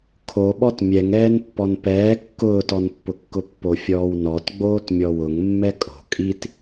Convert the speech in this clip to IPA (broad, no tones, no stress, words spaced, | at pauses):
kʰoɓɔt mʲɛŋɛːnpːɔn pɛː kːʊːtɔnpːʊkːʊ pːofʲɔːwnɔt ɡ͡boːtmʲɔwʊŋ mːɛkʼo̤ kʼit